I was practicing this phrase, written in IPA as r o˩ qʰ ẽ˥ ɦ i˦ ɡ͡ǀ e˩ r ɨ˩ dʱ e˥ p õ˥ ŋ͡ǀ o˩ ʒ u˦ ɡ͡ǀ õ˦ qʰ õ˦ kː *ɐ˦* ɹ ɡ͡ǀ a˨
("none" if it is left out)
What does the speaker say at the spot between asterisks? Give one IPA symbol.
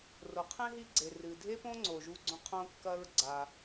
ɐ˦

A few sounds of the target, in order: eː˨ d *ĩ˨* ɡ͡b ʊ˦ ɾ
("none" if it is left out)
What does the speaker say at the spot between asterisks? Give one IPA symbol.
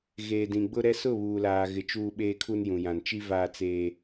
ĩ˨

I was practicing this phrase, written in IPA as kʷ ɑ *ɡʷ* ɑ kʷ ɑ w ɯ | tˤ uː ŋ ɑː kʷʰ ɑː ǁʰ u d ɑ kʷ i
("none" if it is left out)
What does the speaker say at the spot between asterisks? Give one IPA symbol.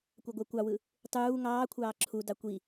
ɡʷ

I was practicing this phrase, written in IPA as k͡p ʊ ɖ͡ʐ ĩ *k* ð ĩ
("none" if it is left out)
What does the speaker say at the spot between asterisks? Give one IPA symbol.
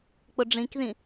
k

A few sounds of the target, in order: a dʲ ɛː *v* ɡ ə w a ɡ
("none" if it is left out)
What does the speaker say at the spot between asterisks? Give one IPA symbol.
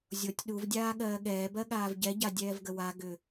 v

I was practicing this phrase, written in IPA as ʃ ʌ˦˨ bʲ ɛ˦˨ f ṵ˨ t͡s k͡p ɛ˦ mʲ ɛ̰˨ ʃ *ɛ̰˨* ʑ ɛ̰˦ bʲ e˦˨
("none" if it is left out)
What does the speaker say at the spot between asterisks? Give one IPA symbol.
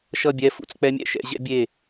ɛ̰˦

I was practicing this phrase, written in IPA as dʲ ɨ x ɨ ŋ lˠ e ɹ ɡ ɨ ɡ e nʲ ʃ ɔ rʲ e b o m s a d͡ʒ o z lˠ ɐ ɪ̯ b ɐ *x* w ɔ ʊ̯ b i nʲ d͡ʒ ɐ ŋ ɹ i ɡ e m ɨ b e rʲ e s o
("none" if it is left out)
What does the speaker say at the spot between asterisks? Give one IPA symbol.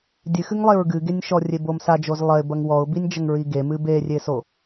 ŋ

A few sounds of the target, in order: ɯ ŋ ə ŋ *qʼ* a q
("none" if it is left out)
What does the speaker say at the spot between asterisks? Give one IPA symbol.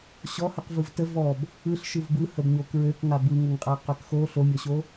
qʼ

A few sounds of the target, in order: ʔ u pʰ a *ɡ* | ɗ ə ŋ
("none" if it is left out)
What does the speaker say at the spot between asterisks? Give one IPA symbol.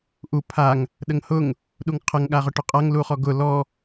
ŋ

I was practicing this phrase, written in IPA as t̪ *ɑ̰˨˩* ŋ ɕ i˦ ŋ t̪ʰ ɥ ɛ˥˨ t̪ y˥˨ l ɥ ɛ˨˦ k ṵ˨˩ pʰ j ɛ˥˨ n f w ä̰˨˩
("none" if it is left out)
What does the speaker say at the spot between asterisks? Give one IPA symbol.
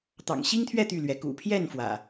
ɑ̰˨˩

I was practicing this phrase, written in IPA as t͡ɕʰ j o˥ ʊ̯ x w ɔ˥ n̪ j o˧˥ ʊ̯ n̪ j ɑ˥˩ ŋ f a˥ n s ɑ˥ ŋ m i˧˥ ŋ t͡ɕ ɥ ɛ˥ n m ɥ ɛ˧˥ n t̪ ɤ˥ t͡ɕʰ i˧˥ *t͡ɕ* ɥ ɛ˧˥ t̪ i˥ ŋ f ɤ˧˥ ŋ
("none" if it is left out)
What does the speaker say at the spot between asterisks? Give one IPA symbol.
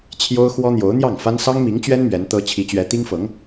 t͡ɕ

